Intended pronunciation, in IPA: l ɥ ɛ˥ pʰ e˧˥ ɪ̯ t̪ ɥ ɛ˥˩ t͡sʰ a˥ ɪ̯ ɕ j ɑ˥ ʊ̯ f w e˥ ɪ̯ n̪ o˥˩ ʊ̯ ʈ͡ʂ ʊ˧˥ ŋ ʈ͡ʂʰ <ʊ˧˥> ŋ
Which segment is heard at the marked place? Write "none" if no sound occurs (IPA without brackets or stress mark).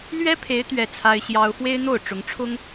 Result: ʊ˥